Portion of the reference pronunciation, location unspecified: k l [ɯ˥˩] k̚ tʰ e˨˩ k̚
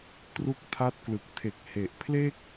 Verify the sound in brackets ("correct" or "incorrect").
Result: incorrect